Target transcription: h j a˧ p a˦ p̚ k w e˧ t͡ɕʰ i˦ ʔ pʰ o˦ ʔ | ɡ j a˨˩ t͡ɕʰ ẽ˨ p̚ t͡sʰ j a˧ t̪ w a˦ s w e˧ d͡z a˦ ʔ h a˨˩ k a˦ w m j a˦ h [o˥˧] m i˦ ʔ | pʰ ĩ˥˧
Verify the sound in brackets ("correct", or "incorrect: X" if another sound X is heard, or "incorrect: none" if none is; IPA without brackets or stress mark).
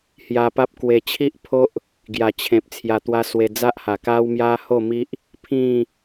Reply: correct